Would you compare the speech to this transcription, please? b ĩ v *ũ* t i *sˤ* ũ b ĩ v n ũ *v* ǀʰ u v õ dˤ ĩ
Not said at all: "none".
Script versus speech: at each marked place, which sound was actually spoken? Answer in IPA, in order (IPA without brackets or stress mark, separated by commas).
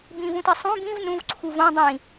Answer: ũ, sˤ, v